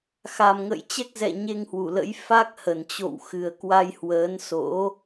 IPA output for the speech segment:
x a˨˩ m ŋ ə̰˧˨ j t͡ɕ ɛ˦˥ k̚ z ɛ̰˧˨ ɲ e˧ ŋ h w u˧˩ l ə̰˧˥ j f a˦˥ k̚ h ə˧˩ n t͡ɕ o̰˧˨ w x ɨ˨˩ ə̯ k w a˧ j h w əː˨˦ n s o̰˧˥

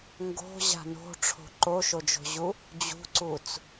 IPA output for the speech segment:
ŋ ɡ o̤ ʑ a̤ n o̤ ʈ͡ʂʰ o̤ ǃ o ʃ o d͡ʒ o̤ ʑ u | d͡ʑ ṳ ǀ u t͡s

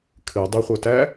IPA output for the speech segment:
kʰ ɨ dˤ ɪ χʷ œ t æ

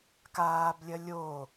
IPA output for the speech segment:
k aː b lʲ ɐ lʲ oː

